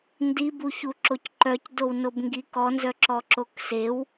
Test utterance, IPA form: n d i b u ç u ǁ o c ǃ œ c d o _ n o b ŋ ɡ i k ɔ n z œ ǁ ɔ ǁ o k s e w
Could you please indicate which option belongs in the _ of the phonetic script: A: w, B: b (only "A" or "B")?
A